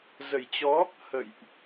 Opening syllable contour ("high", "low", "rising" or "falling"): low